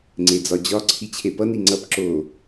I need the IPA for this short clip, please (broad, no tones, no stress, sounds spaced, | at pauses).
ŋ͡ǀ e d͡z ɒ d͡ʑ ɒ ǀʰ i t͡ɕʰ e p ʌ n i ŋ͡ǀ ʌ p ǁ o